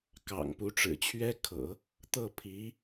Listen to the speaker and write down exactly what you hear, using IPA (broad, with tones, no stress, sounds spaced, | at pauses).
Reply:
k ɑ̰˨˩ ŋ p u˧˥ ʈ͡ʂ ɻ̩˨˩ t͡ɕʰ ɥ ɛ˥ kʰ ɤ̰˨˩˦ | t̪ ɤ˥˩ pʰ i˧˥